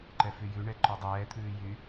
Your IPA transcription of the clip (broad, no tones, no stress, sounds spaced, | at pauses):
ǃ ɛ f y j ʉ ɳ ɛ ǃ ɔ dˤ ɛː t̪ʰ ʉː j y